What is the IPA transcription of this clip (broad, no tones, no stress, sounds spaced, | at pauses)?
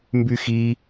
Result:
m b y x i